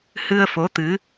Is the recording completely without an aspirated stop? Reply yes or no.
yes